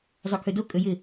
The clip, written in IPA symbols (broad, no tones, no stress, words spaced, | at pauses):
zˤœkʰødo kʼøjɪ